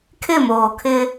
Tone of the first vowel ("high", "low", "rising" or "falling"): falling